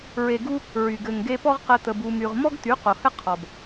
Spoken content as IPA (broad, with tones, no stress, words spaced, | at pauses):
ɹe˨ɡu˧ | ɹy˨ ɡɘ˨ŋɡe˧pɔ˦ʁqɘ˧ t̪ə˧bu˧my˧ʁ mɔ˦ɡt̪y˨˦ qo˨hɘ˦qʰɔ˨b